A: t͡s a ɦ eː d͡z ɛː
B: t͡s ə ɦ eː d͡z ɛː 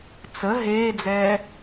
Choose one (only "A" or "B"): B